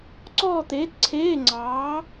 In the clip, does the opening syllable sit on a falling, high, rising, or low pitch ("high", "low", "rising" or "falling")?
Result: falling